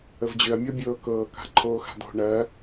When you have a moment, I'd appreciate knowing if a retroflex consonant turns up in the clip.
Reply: yes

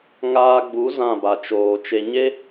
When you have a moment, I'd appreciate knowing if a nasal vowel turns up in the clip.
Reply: yes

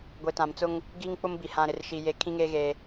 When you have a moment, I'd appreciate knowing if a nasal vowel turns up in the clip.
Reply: yes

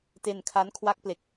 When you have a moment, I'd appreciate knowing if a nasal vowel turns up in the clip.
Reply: no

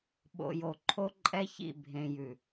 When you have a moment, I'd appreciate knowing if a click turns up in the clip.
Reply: yes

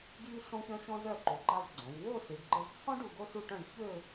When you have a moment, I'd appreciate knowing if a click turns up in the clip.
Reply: yes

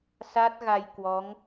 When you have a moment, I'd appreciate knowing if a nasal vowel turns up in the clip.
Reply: no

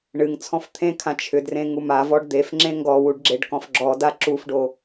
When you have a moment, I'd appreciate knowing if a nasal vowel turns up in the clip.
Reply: yes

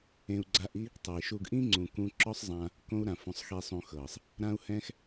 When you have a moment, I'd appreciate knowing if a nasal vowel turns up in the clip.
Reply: yes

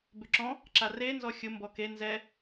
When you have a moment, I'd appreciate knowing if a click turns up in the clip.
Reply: yes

